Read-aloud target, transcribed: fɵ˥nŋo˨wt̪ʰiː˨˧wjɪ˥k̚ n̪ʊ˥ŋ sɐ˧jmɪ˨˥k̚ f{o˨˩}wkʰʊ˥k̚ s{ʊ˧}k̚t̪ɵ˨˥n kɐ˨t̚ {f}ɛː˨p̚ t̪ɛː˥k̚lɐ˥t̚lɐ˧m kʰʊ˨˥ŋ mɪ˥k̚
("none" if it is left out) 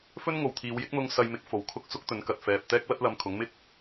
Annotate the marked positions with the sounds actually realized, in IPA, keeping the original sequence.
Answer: o˨˥, ʊ˥, f

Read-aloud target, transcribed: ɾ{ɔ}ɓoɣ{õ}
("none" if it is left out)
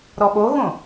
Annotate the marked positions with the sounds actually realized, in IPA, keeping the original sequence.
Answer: ɔ, õ

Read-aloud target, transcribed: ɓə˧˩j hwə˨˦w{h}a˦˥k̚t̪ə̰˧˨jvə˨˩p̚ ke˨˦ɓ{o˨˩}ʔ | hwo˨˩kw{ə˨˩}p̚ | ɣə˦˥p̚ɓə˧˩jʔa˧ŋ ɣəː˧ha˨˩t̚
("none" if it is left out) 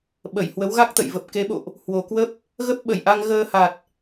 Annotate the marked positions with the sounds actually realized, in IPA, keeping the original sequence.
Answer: ɣ, o̰˧˨, ə˦˥

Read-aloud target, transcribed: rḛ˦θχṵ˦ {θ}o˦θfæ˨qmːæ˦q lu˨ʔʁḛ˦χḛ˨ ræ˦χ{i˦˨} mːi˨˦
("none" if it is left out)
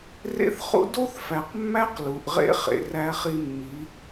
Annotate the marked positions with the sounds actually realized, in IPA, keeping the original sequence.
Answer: d, i˦

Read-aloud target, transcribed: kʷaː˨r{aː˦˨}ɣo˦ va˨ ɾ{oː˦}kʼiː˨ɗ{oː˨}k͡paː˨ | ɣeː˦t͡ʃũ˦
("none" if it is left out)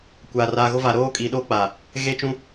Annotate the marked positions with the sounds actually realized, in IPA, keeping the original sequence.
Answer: aː˨, oː˦, oː˦

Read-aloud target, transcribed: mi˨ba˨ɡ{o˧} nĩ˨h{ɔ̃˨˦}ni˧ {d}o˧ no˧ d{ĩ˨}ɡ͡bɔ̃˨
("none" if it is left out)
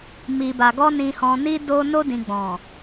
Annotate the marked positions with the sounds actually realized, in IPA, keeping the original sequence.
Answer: ɔ˧, ɔ̃˨, d, ĩ˨

